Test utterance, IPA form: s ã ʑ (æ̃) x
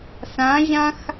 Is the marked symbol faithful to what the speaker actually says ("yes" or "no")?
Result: no